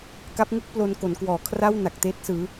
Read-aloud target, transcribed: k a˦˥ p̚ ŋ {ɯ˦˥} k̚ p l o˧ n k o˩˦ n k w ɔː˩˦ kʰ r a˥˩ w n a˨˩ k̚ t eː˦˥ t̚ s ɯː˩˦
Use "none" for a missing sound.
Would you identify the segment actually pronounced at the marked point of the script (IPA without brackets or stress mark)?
ɯ˥˩